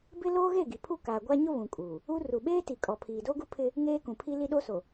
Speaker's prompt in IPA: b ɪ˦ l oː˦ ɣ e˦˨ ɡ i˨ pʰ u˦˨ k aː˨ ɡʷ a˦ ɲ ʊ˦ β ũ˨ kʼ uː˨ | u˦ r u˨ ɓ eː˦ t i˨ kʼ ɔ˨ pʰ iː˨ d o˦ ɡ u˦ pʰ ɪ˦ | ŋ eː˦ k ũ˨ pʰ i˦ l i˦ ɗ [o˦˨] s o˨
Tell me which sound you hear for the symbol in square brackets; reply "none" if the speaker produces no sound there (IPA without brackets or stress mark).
o˦